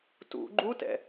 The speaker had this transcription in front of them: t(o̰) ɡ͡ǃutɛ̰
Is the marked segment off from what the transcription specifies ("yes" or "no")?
yes